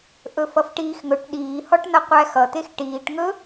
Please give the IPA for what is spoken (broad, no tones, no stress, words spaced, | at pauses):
ʔɵfʌfʈiːxŋɵʈ ɗiːhɔʈnʌ qʷæxʌt̪ex ʈiːʈŋɵ